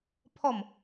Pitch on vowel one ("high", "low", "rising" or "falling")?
falling